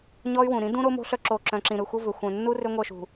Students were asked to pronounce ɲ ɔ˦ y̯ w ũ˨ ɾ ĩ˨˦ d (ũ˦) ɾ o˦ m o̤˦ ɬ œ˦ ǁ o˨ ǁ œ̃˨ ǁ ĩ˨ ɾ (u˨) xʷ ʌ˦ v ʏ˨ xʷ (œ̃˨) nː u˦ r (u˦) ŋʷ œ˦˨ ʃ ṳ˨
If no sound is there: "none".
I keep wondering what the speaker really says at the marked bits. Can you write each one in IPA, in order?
ũ˦, ɯ˨, œ̃˨, ʏ˦

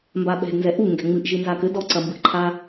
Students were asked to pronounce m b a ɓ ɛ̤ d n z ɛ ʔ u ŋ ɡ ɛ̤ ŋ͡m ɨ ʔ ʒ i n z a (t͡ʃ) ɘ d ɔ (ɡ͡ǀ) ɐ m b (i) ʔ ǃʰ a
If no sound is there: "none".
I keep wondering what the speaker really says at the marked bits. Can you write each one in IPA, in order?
k, ǀ, ɨ

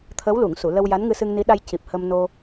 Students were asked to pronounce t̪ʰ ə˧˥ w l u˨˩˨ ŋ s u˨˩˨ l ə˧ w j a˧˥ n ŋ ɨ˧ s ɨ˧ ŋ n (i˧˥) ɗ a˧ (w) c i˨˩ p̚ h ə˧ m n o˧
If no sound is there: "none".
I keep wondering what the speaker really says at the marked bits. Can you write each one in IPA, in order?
i˧˥, j

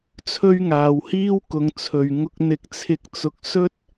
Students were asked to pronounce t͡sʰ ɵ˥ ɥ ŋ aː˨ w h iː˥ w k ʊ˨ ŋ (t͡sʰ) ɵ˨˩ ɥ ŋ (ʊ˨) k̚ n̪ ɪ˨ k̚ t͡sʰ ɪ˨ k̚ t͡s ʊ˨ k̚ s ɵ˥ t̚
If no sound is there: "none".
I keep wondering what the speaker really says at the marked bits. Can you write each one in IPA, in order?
t͡sʰ, ʊ˧

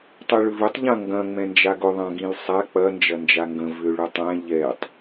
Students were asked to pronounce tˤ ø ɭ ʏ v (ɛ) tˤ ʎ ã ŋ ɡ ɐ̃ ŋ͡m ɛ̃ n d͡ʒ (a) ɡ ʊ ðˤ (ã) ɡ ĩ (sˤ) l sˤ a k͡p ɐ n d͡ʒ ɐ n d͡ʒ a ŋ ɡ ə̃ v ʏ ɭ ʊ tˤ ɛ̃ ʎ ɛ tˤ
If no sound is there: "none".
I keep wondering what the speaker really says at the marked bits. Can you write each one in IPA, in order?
ʏ, a, ã, none

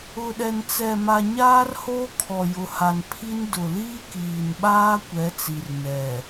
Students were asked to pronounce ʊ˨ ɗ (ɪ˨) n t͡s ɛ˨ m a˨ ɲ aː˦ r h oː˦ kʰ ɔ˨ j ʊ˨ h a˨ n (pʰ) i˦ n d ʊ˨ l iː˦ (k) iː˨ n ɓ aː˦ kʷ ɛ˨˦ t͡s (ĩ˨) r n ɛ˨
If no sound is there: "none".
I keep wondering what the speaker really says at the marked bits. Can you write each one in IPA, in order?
ɛ˨, pʰ, k, i˨

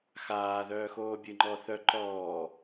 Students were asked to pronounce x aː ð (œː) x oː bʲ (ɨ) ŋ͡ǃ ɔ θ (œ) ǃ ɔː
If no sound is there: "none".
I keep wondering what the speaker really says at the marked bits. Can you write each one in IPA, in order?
œː, ɨ, œ

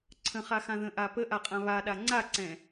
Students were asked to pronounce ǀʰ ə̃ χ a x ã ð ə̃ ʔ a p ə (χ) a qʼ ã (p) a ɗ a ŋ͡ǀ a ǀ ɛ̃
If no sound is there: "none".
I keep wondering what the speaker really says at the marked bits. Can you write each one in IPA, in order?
ʔ, β

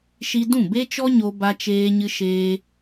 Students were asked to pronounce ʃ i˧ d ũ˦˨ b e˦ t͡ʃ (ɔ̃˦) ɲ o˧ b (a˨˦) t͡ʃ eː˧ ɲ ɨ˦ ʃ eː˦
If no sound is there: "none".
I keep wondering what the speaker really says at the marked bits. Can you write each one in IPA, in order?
ɔ˦, a˧

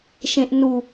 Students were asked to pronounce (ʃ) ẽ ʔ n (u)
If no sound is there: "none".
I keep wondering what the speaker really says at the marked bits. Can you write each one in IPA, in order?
ʃ, u

